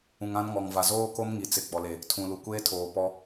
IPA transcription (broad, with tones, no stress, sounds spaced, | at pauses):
ũ˨ ŋ ã˦ n ŋ ɔ˨ ŋ v a˨ z oː˦ k o˦ m ŋ i˨ t͡s ɪ˨ ɡ͡b ɔ˨ l e˨ | tʰ ũ˨ l u˨ kʷ eː˦ tʰ oː˨ p ɔ˦